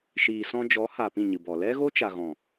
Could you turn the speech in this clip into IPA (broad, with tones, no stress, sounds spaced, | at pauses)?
ʃ iː˨ s ɔ̃˧ d͡ʒ ɔ˨˦ h a˧ p ĩ˦˨ ɲ ɨ˨ b ɔ˨ l ɛ˦ ɣ o˦ t͡ʃ a˨ ɣ ɔ̃˨